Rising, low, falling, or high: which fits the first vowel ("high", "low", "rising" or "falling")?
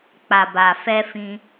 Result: low